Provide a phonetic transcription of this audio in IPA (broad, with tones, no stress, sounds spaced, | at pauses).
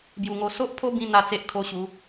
b j u˨˩ ŋ o˧ s o˦ ʔ pʰ o˦ b ĩ˧ n̪ a˥˧ t͡s e˦ ʔ kʰ o˥˧ ɕ u˨˦